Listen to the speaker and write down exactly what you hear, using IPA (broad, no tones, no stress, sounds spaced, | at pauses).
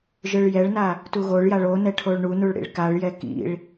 ʒ ɯ ɭ j ɛ ɭ n a | t u ɣ o ɭ j a ɭ o n ɛ ʈʰ o ɭ ɳ u n u ɭ ɽ ḭ ɭ k a ɭ j ɛ k ḭ ɭ